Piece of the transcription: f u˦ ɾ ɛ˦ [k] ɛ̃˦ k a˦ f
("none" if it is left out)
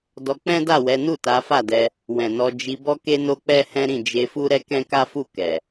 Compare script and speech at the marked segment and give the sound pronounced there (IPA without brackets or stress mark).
k